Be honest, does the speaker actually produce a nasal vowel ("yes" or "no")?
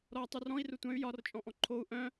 yes